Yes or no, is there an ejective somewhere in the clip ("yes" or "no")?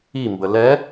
no